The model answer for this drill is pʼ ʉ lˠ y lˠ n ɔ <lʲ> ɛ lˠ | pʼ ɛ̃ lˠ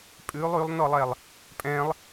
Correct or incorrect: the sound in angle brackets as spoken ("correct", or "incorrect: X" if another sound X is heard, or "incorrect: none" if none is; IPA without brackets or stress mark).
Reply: incorrect: lˠ